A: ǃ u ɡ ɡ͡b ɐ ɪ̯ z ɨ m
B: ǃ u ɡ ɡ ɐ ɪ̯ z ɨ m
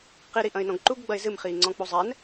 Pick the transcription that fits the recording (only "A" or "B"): A